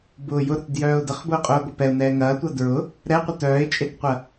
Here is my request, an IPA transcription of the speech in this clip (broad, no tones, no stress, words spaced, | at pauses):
bʊːjʊɾʊt djœːʊ̯dəχbʊːqʼʊː ɡʷəpɛʊ̯nɛː ŋɐːtʷɐ dɹʊ | ɾɛqʷə tœːɪ̯t͡ʃʼetqʷɐ